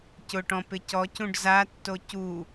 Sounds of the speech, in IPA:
c ʊ ʈ ɔ̃ p ɪ c ɔ c ũ ɖ z a tː o c u

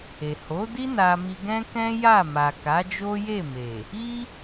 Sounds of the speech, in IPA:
e˨ h o˨˦ d i˦ n a˧ m i˧ ɡ ɛ̃˦ k ɛ̃˦ j a˦˨ m a˨ k a˨˦ d͡ʒ o˦ j e˦˨ m e˨ | i˦

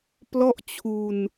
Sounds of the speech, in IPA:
p l ɔ˥˩ ʔ t͡ɕʰ u˧ n

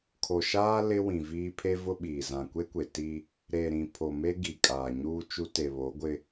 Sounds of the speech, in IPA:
kʰ o˨ ʃ aː˦ l ɪ˦ w ĩ˨ v iː˦ pʰ e˦ v ʊ˦ ɓ iː˨ z ã˨ kʷ e˦ kʷ e˨ t i˦ | ɾ e˨ ɾ ĩ˨ pʰ o˨ m e˦ ɡ i˨ kʼ aː˨ ɲ uː˦ t͡ʃ u˦ t e˨ β o˨˦ ɡʷ ɪ˦

